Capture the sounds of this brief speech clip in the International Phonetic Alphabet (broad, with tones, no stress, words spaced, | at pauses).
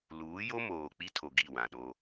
luː˨˦jo˦moː˨ k͡pi˦tʰo˨ ɡi˦˨wã˨ɗo˦